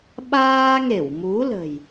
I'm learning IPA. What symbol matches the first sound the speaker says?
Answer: ɓ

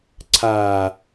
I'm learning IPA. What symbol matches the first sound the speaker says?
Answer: ǀʰ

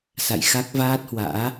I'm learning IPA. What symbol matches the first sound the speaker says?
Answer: s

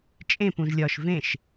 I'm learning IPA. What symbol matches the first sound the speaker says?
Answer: t͡ʃʼ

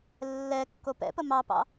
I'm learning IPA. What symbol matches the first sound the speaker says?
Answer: lː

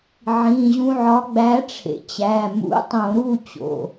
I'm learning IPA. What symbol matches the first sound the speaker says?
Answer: ʕ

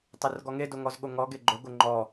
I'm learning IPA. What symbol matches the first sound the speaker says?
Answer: tˤ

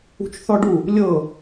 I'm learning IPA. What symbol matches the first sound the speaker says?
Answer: ṳ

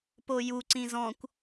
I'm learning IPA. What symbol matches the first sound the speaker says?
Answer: p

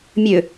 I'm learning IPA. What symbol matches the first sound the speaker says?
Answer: mʲ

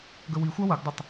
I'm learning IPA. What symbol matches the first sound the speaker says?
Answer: ɡ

